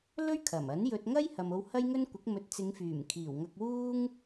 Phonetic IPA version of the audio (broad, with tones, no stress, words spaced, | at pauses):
lɵ˥ɥkʰɐ˨˩m ɐ˨˥njɵ˧t̚ ŋɐ˥j hɐ˨mo˧whɐ˥jŋɵ˥n kʷɪ˨˥k̚ mɵ˨˥t̚t͡sɪ˨˧ŋfyː˨˩mkʰiː˨˩w ŋɐ˧k̚wuː˥ŋ